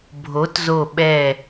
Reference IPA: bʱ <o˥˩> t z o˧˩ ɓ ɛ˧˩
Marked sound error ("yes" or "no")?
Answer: yes